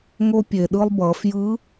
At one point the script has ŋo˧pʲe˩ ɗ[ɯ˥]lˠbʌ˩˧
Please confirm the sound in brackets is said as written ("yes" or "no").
no